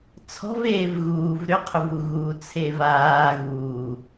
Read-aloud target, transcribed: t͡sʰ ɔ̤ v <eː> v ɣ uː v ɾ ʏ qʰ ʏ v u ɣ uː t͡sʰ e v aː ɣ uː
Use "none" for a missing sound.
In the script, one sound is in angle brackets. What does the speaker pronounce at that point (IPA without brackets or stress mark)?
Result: eː